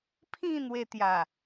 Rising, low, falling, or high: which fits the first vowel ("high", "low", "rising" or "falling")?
falling